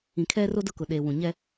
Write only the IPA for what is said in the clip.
ĩ˨kʰɛ˦ro˦ dʊ˦kʊ˨ ɗe˨wũ˨ ɲɛ˦

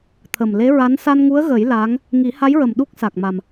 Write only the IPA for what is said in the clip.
t̪ʰə˨˩mle˧˥ɹa˧˥n sa˧nŋu˧˥ə̯ɣə˨˩˦j laː˧˥ŋ | ŋi˨˩˦ha˧˥jɹə˨˩m ɗu˦˥k̚sa˨˩k̚ma˨˩m

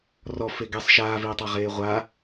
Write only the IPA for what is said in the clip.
rɔfe ɡɛsˤ ʃaːviːtˤaʁeː ʁʷa

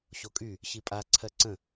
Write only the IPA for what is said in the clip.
ɕokʼy | ɕipʼa ǀʰɜǀə̃

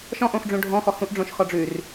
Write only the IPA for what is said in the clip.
ʃɔ̃ʔõxɖ͡ʐũ ɖʱɔ̃ xɔhũʔɖ͡ʐõʃ xɔɖ͡ʐʉr

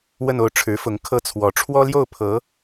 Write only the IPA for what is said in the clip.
wə˥˧no˥˩ʊ̯ ʈ͡ʂʰɻ̩˧˥fʊ˧˥ŋ kʰɤ˥˩t͡sʰwɔ˧˥ ʈ͡ʂʰwɔ˥ljo˥˩ʊ̯ pʰɤ˧˥

